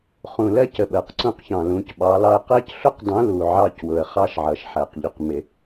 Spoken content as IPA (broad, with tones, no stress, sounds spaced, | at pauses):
χ ũ˨ l ɜ˦ c ə˨ ɓ ɜ˨ q ǀ ũ˦ q ç ɑ̃˨ l ũ˨˦ c ɓ ɑ˨˦ l ɑ˦ ə̯ q ɜ˦ c ɬ ʊ˦ q dˤ ũ˨˦ l u˨ ʕ ɑ˦ c w ʊ˨ ə̯ χ ɑ˦ ʃ ʕ ʌ˨ ʃ ħ æ˨ q ʎ ʊ˨ q m ɪ˨